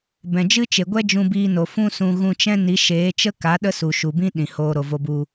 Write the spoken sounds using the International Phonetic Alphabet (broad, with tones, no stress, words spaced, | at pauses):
bɛ̃˨d͡ʒɨ˦t͡ʃe˨ɡʷɛ˦ d͡ʒũ˧biː˧no˨ fũ˦sũ˧ ɣũ˧t͡ʃɛ̃˦ni˨˦ ʃeː˨˦t͡ʃə˦ka˨˦ ɗə˦su˨ʃu˨bĩ˦ ɗĩ˨ hoː˧ɾo˨vo˧bu˧